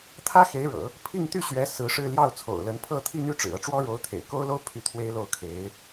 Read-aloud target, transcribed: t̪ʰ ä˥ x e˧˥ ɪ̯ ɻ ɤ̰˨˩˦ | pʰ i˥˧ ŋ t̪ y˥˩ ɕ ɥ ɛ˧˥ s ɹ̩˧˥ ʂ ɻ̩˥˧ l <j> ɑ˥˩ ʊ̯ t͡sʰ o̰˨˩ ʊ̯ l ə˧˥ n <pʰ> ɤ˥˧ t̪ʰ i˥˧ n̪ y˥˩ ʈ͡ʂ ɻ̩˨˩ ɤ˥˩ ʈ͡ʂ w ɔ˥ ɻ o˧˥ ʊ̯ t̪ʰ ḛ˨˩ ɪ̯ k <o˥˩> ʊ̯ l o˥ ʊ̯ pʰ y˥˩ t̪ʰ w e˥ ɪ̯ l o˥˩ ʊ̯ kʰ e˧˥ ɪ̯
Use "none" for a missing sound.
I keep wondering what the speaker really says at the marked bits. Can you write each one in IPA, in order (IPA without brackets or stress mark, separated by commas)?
j, pʰ, o˥